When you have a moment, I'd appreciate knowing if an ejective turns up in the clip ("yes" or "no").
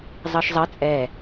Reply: yes